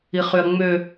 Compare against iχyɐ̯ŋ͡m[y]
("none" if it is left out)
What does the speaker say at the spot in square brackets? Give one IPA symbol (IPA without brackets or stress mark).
ø